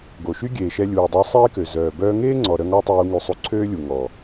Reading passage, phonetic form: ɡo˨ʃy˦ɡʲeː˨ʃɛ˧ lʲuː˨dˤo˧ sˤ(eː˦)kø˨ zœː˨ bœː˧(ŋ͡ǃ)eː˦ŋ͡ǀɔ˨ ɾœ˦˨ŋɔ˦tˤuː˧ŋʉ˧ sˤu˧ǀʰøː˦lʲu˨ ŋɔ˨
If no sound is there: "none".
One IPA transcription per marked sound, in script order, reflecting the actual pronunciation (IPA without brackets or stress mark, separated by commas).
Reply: eː˦, ŋ